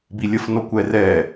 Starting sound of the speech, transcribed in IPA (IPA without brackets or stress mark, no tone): b